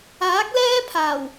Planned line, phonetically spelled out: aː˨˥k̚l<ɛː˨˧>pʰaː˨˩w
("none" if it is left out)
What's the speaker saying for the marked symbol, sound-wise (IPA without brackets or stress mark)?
ɛː˥